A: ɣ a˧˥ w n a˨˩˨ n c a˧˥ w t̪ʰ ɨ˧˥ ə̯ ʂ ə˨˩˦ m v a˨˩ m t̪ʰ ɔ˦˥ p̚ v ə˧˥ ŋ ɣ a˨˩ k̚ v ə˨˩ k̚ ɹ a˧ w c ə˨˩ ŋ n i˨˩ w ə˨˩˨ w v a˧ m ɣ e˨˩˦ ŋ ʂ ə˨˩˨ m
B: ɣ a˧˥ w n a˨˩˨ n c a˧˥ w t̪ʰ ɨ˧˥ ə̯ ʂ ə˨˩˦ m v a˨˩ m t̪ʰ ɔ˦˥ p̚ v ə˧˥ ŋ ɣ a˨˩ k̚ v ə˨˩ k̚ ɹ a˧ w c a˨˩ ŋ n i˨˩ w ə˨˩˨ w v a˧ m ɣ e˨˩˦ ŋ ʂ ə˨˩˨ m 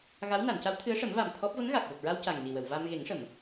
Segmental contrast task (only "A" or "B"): B